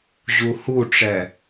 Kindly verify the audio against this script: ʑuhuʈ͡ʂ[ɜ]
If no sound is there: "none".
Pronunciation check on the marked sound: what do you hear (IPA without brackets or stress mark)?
ɛ